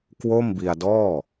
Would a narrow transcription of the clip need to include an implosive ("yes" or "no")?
no